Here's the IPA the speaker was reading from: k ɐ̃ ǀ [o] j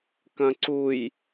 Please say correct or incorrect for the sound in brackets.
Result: incorrect